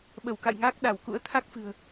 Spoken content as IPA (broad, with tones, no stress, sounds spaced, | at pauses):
ɓ ə˧˩ w k a̰˧˨ j ŋ aː˦˥ k̚ ɗ a˧˩ w k ṵ˧˥ ə̯ t̪ʰ a˦˥ k̚ f ɨ̤˨˩ ə̯